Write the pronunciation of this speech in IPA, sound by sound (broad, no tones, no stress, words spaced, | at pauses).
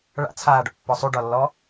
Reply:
ɭa̰t͡sʰaːɖɔ̰pːɔ sˤuɖɒlːɔ